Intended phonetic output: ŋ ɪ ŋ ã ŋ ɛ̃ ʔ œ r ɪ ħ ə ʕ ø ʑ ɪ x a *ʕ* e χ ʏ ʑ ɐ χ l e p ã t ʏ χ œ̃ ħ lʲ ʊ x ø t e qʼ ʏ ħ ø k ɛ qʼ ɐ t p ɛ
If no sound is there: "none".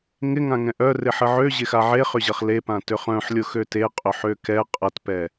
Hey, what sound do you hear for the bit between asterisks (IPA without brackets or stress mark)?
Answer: ʕ